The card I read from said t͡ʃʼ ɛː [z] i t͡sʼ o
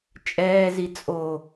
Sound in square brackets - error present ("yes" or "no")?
no